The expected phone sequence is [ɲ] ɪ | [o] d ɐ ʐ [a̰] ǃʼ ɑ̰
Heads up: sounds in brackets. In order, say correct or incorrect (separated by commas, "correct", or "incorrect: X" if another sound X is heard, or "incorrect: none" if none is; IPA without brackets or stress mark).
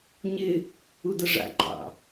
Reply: correct, incorrect: u, correct